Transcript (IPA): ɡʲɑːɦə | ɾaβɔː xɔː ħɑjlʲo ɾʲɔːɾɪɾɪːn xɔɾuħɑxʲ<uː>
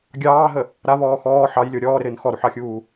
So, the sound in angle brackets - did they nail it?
yes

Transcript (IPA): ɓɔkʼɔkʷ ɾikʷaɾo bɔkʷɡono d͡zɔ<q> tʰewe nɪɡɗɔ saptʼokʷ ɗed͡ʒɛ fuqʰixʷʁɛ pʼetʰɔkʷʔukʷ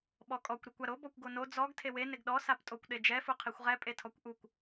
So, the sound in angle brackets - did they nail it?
no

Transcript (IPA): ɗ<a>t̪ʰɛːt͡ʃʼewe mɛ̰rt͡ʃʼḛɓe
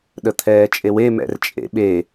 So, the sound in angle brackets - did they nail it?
no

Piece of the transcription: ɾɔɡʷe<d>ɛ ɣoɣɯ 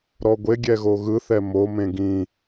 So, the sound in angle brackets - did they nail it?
no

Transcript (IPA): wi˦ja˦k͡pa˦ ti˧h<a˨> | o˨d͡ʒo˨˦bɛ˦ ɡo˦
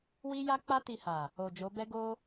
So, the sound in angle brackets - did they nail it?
yes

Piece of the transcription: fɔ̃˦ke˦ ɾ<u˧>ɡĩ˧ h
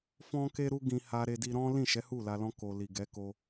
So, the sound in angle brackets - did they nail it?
no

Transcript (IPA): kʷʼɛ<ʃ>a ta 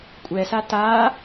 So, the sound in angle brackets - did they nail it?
no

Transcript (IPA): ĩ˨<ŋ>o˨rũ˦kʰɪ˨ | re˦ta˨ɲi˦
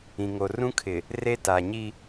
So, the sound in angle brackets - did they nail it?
yes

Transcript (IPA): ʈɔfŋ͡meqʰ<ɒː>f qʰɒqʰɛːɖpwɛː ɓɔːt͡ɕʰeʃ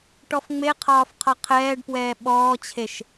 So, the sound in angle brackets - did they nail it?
yes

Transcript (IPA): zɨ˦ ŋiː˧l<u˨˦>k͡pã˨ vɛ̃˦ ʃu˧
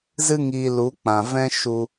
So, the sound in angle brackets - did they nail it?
yes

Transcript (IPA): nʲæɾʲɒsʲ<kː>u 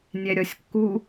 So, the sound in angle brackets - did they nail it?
yes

